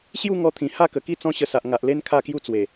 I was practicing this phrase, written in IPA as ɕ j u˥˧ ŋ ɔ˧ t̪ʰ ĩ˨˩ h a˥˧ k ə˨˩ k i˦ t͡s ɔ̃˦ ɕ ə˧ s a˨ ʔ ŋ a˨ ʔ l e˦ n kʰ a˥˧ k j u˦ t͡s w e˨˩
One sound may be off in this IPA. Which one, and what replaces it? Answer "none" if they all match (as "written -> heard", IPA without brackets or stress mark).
none